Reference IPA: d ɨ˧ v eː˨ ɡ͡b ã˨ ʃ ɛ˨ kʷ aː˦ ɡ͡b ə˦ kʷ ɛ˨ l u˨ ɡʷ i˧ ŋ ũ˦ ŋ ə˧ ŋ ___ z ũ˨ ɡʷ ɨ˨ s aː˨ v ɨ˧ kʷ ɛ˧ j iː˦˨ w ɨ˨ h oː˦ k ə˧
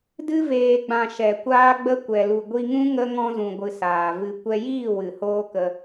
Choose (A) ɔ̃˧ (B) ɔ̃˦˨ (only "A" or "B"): A